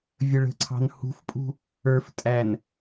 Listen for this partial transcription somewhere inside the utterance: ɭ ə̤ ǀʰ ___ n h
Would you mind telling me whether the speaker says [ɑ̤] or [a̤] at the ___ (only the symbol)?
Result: ɑ̤